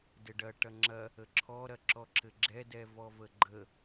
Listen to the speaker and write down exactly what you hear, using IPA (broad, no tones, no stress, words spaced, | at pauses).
dɘɖɐ ʈɐŋ͡ǁɐ | əǁʰɔ ɾɐǁɔǁɘɡ͡ǁɛ dɛvɔvəɡ͡ǃə